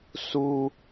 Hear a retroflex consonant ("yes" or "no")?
no